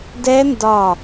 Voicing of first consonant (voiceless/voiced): voiced